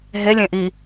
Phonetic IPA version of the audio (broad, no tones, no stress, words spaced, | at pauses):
ɦe lʲẽʔi